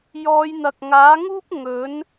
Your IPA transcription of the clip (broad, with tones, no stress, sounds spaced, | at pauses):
j ɔː˨˧ j n̪ ɐ˨ k̚ ŋ aː˨˥ ŋ uː˥ p̚ ŋ ɵ˨˥ n